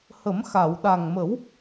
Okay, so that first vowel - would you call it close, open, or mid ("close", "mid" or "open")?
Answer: mid